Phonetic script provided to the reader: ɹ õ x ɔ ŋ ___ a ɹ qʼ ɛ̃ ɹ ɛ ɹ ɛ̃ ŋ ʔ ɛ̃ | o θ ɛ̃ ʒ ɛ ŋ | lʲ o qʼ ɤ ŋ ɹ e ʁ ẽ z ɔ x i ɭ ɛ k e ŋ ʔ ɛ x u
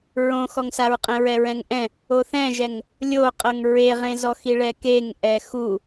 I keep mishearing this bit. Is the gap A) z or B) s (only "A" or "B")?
B